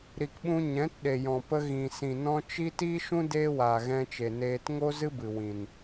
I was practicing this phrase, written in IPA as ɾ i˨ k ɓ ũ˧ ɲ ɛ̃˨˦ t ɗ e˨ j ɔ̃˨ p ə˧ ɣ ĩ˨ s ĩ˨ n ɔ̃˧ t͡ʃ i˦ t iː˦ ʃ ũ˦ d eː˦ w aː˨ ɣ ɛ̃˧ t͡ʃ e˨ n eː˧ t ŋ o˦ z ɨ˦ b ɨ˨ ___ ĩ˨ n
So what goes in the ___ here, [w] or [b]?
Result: w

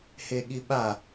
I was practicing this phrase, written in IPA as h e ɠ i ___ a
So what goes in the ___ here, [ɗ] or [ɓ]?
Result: ɓ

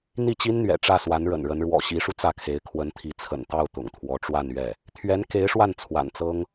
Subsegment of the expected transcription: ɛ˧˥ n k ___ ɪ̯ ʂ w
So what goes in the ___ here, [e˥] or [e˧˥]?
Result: e˧˥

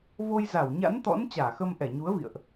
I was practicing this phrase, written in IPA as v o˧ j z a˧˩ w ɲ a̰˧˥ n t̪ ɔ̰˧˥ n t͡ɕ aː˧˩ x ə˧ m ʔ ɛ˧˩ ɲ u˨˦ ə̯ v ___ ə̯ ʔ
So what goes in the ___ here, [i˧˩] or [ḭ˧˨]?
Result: ḭ˧˨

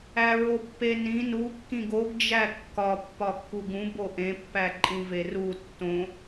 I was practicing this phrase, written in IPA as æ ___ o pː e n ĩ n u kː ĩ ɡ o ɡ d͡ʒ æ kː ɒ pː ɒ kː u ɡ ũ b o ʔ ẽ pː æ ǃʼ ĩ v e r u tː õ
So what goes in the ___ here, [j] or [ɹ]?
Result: ɹ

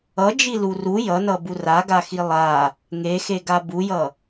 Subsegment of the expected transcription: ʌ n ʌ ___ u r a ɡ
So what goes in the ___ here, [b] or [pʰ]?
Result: b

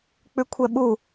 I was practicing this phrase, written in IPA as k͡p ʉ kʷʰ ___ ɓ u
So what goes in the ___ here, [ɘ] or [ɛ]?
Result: ɛ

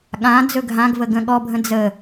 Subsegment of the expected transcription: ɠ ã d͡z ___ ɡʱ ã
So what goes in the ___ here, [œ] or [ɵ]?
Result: ɵ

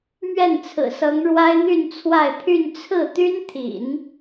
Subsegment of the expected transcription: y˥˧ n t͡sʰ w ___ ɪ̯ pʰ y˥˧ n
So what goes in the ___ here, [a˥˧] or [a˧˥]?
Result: a˥˧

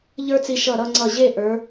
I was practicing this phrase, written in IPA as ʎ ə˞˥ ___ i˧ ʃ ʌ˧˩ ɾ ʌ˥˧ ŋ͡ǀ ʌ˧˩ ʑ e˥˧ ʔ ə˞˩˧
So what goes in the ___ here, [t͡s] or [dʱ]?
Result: t͡s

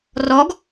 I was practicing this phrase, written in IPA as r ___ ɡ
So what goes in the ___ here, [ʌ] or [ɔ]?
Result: ɔ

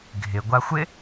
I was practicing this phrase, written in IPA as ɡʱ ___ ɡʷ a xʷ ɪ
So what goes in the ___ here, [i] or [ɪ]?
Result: ɪ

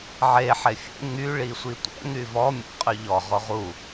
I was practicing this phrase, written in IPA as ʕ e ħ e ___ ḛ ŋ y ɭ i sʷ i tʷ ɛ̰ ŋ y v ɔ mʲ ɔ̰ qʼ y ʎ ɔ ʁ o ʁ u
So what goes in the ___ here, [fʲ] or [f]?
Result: fʲ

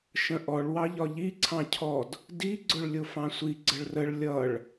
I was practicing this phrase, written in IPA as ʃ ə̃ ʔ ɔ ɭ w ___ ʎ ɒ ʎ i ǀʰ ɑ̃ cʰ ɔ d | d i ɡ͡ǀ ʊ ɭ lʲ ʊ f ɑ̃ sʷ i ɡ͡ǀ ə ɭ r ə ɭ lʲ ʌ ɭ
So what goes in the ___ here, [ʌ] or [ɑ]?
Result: ɑ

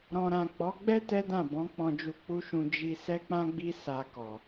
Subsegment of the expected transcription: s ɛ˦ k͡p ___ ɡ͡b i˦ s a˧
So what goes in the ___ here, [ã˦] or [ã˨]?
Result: ã˦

